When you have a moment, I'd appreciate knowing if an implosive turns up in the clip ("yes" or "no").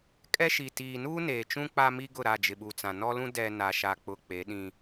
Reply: yes